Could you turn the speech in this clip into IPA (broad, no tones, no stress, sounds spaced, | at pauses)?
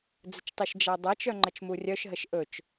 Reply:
d͡z ə t͡ʃ tˤ ɵ ʃ d͡ʒ a dˤ a t͡ʃ œ ŋ͡ǃ ə t͡ʃ m u rʲ œ ʃ ɦ ə ʃ ʔ ɵ t͡ʃ